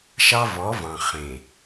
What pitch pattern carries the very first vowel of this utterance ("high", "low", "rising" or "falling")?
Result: high